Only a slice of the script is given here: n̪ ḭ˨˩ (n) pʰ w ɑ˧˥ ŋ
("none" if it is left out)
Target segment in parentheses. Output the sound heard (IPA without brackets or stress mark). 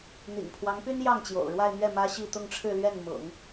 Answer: ŋ